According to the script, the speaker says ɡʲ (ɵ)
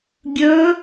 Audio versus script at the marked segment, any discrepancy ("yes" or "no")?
no